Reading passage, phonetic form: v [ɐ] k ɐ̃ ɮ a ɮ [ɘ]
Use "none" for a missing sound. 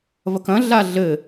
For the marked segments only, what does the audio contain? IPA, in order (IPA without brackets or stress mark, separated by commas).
ɐ, ɘ